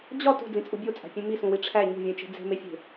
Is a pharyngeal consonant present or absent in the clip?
absent